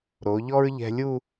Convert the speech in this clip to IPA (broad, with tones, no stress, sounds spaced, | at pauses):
ɾ o˩˧ ʎ ɔ˥ ɹ ʎ ɛ̤˧ lʲ u˥˧